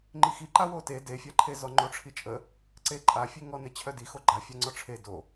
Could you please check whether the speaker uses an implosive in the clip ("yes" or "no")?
no